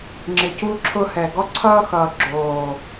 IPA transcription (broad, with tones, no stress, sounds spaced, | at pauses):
ŋ͡ǁ ɪ˨ c u˦ ǁʰ ʊ˦ h ɛ˨ ɡ ɔ˦ ǀʰ ʌː˦ x ʌː˨ ɡ͡ǁ oː˨